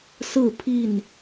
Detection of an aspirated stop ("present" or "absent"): present